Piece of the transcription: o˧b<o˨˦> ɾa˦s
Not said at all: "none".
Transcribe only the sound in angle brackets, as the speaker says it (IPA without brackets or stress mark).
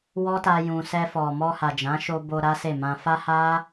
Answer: o˧